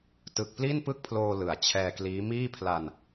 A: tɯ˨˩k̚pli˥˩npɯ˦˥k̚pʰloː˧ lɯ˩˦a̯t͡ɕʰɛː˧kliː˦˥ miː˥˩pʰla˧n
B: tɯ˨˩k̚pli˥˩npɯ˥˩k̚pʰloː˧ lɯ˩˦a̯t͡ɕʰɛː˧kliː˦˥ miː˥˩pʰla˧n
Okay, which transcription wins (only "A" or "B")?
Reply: B